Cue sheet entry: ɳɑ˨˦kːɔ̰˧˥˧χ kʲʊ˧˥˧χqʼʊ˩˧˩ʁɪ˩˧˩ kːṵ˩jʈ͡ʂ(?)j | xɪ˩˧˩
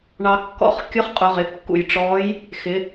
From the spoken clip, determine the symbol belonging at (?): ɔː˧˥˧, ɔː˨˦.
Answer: ɔː˨˦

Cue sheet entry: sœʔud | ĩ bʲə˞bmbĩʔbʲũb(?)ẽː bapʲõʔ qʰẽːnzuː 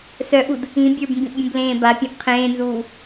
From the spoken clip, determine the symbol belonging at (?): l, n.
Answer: l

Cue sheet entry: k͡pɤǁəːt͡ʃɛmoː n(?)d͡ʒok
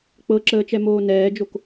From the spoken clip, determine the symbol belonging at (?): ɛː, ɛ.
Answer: ɛː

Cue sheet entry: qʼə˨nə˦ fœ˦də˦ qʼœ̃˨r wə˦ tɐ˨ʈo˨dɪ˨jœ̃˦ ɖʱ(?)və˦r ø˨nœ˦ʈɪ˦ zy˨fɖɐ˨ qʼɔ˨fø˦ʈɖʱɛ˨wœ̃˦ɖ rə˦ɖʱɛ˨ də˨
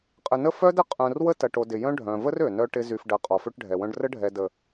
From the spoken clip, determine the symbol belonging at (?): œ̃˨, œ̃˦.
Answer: œ̃˨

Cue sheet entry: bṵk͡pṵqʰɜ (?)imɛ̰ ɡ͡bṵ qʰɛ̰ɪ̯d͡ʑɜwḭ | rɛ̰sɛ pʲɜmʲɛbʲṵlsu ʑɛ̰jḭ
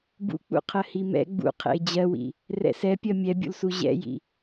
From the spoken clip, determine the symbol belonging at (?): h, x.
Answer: h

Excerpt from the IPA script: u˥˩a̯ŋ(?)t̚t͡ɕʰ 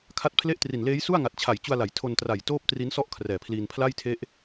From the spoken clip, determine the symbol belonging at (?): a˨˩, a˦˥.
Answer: a˨˩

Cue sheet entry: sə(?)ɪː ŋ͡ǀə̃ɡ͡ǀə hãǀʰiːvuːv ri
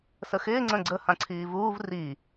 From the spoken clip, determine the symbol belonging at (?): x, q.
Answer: x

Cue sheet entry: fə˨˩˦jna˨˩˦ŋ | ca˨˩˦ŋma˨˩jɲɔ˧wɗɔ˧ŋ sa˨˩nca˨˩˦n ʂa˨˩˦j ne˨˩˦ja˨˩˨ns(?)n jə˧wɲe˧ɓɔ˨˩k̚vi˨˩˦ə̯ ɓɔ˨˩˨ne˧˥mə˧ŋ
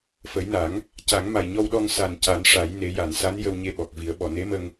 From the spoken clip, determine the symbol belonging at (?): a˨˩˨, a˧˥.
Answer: a˧˥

